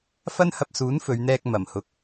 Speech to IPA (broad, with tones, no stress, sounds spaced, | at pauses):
f ɐ˥ n h ɐ˧ p̚ s uː˨˥ n f ɵ˨˧ ɥ n̪ ɛː˧ k̚ m ɐ˨˩ m h ʊ˨ k̚